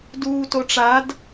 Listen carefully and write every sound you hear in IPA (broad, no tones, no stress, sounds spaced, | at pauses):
d uː t o ʈ͡ʂ a d